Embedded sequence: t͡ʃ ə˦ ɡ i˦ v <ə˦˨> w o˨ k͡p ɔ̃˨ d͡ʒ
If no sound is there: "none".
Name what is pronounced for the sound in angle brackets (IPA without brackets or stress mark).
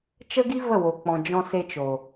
ə˦˨